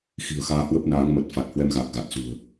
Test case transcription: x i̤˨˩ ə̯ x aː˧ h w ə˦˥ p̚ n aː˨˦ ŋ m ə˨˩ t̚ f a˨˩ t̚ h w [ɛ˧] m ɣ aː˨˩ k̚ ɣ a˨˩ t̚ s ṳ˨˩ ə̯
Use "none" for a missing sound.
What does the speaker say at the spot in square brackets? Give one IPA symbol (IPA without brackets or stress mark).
ɛ˧